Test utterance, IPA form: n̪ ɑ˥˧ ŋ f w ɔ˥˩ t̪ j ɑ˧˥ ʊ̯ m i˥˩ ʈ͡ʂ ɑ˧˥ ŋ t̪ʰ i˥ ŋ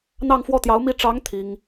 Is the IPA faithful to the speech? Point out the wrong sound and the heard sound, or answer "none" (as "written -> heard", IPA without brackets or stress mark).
none